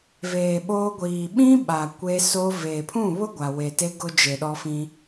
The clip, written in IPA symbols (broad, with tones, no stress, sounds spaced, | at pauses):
v eː˨ ɓ oː˦ ɡʷ iː˨ ɓ ĩ˦ ɓ a˨ kʷ e˦ s o˦ v eː˨ pʰ ũ˦˨ β ʊ˦ ɡʷ a˨ w e˨ t e˦ ɡ ʊ˦ d͡ʒ e˨ ɗ ɔ˦ f ĩ˦